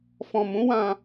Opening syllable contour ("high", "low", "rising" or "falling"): low